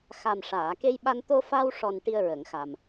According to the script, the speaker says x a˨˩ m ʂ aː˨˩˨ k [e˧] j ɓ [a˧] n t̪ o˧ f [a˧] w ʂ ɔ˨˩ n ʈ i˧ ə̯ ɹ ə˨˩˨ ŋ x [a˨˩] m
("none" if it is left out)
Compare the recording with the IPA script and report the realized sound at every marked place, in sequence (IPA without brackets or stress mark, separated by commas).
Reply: e˧, a˧, a˧, a˨˩